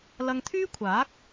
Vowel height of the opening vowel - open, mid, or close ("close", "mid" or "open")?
open